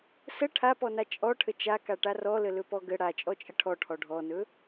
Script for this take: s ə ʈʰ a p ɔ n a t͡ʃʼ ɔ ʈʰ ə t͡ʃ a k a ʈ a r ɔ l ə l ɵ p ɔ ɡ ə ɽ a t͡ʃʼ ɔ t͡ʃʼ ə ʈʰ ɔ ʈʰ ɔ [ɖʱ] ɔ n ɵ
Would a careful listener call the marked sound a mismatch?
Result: no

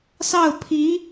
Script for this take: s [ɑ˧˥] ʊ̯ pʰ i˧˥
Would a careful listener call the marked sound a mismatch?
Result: yes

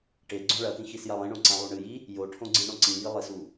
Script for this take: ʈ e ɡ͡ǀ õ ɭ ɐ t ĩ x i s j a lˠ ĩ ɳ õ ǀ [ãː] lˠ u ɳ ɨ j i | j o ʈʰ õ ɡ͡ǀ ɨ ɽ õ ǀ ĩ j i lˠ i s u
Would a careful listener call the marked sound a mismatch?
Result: yes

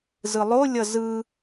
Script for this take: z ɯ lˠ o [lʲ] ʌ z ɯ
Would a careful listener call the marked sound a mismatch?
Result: no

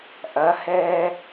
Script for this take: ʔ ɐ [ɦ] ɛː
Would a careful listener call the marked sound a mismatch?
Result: yes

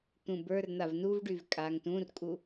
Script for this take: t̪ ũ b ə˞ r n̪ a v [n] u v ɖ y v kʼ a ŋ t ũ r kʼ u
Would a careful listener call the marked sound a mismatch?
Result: no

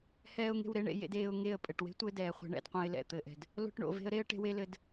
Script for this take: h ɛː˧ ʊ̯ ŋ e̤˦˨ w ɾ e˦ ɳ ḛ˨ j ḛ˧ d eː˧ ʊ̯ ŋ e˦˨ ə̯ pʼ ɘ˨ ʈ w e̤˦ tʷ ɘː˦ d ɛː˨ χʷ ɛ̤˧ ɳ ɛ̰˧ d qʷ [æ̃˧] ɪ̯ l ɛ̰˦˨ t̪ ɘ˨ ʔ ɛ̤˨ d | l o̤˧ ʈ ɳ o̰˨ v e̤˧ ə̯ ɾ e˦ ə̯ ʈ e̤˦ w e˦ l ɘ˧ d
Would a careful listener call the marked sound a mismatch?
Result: yes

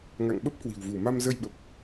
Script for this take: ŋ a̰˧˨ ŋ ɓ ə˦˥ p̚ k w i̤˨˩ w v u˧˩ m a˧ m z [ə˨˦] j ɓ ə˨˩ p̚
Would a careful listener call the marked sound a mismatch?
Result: yes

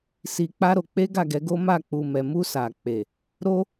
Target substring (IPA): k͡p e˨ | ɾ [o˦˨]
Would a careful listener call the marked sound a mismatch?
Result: yes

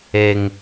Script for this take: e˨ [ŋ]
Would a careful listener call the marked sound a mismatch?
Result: no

